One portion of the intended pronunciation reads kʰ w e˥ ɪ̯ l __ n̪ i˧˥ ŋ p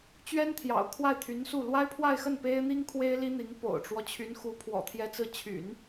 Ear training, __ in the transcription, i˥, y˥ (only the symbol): i˥